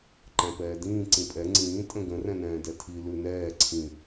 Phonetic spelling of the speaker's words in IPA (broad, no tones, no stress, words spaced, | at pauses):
ǃæ̃pɛːdĩː ǀĩpʼɛ ŋ͡ǀĩː tʼə̃ɡə̃ rɛ̃nɛ̃ːdɛtʰi lʉnɛː ǀʰĩ